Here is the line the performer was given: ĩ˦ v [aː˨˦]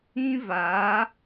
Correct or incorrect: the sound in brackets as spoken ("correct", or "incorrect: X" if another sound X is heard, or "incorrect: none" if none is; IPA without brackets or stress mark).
correct